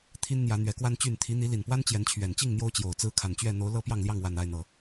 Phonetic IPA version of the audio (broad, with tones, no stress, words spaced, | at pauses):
t̪ʰi˦nn̪jä˨˦ n̪ɥɛ˨˦kwa˦nt͡ɕy˥˨n t̪ʰi˨˦n̪i˨˦li˨˩npwa˦n t͡ɕjɛ˨˦nt͡ɕʰɥɛ˨˩nt͡ɕi˥˨ŋ n̪jo˦ʊ̯t͡ɕjo˨˩ʊ̯t͡sɹ̩˦ kʰa˨˩nt͡ɕɥɛ˥˨ n̪o˨˦ʊ̯ lɤ˦pjɑ˥˨ŋljɑ˥˨ŋ wa˨˩n a˥˨ɪ̯n̪ɤ˨˩